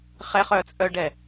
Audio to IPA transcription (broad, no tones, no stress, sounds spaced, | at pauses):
χ ɛ χ œ t͡sʼ œ ɖ ɛ